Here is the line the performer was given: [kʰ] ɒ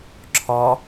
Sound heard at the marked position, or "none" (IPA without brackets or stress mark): ǁʰ